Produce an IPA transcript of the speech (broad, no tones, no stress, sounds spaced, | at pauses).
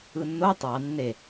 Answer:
ɯ nː o tˤ ɑ nː e